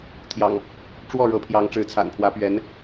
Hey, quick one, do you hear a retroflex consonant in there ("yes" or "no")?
yes